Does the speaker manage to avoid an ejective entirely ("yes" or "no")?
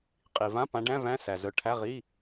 no